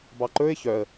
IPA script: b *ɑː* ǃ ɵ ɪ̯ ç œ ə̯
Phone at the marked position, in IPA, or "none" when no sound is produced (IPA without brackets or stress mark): ɑ